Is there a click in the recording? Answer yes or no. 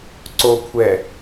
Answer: yes